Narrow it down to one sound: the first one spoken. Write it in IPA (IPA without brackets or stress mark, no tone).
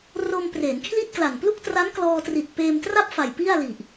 r